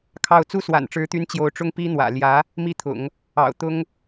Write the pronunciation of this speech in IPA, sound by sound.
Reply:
kʰ ɑ˥˩ ʊ̯ t͡s u˥ s w a̰˨˩ n ʈ͡ʂ ɻ̩˧˥ t̪ y˧˥ n t͡ɕ j o˧˥ ʊ̯ ʈ͡ʂ ʊ˥ ŋ p i˥ n̪ w ä̰˨˩ l j ä˧˥ | m i˥ t̪ʰ ʊ̰˨˩˦ ŋ | ɑ̰˨˩ ʊ̯ t̪ ʊ˥ ŋ

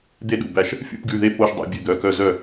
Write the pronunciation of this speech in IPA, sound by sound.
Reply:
d̪ e˦˨ ɗ ṵ˩˧˩ b æ˦˨ ʃ | fʲ ṵ˦˨ p ɡ ʉ˩˧˩ ð e˦˨ p o˦˨ ʃ dˤ ɛ̰˦˨ bʲ ʉ˦˨ d̪ œ˩˧˩ k œ˦˨ z œ˦˨

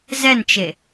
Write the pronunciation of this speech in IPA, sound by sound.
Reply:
z ɛ n t͡ʃ e

